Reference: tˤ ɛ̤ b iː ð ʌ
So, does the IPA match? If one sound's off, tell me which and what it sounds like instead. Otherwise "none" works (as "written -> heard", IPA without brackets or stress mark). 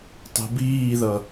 none